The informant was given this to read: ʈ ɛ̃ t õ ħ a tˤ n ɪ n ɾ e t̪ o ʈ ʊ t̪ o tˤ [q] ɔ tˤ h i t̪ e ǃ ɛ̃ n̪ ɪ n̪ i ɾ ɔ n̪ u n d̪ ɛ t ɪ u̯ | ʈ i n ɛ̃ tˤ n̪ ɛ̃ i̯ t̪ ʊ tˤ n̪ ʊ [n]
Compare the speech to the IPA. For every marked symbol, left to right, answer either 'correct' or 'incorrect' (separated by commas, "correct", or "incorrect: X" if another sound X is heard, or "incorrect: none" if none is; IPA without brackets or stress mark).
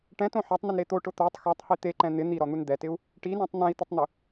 incorrect: x, incorrect: none